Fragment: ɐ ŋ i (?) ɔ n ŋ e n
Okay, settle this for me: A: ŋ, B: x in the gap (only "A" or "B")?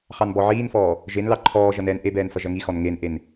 B